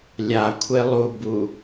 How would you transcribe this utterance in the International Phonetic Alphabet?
lʲ a kʷʰ e lˠ u b u

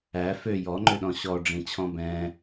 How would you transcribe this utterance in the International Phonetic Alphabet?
æ f ø j ɔ ŋ͡ǃ ø ɗ ɔ̃ ɕ ɔ ɖ͡ʐ ĩ t͡ɕʰ ɔ̃ b ɛ̃

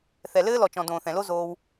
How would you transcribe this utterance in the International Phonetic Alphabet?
θ ɛ˨ l ɘː˦ l ɔ˨ t͡ʃ ɔ̃˨ d õː˨ θ ɛ̃˨ l o˦ z oː˧ w

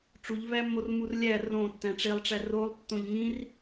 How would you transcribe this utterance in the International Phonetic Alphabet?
ʈ͡ʂ u ʎ v æ mː o r m u r lʲ æ r õ tː æ̃ ʈ͡ʂ e lˠ ʈ͡ʂ æ r o lˠ tː õ ʎ ŋ ĩ r

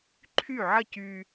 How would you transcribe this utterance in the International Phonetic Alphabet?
ǃʰ y˥˩ ʕ ə˥˩ c y˧

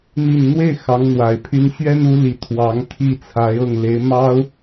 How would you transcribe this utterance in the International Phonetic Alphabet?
n̪ i˨˩ n n̪ w e˥˩ ɪ̯ x ɑ˧˥ ŋ n̪ w a˨˩ ɪ̯ pʰ y˥ n ɕ ɥ ɛ˥ n u˧˥ l i˨˩ t̪ʰ w ɑ˧˥ ŋ t̪ʰ i˥˩ t͡sʰ a˧˥ ɪ̯ ɤ˥˩ ŋ l e˧˥ ɪ̯ m ɑ˥ ʊ̯

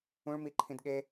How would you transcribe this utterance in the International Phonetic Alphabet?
ũ ɭ m i ǃʰ ĩ d ɠ e

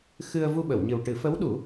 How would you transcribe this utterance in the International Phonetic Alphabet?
x ɨ˧ ə̯ v u˧ ɓ ə˨˩˨ w ɲ ɨ˨˩ w ʈ ɨ˨˩˦ f ə˧˥ w ɗ u˨˩˦

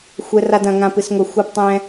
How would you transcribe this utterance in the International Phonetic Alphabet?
xʷ ɛ˦ r a˦ d ɐ̃˨˦ ŋ ã˦ p ɨ˨˦ s ŋʷ ɐ˦ xʷ ɘ˦ p tˤ ɛ̃˦

